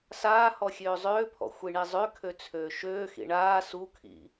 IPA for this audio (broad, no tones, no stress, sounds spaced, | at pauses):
s aː h ɔ xʲ øː zˤ øː pʰ ɔ̰ xʷ i ɳ i zˤ ø kʰ ø t͡sʰ øː ʃ øː x ḭ ɳ aː s u kʰ ḭ